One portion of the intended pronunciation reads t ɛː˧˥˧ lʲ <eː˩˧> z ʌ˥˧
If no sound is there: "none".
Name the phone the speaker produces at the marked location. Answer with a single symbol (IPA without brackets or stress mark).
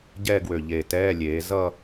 eː˩˧